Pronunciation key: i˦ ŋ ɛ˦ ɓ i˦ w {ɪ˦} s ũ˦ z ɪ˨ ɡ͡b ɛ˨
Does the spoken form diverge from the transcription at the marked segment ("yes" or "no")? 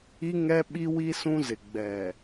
yes